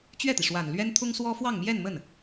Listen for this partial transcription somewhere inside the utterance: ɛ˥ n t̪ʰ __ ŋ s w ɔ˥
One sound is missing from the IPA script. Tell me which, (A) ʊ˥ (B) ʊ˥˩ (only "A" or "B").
A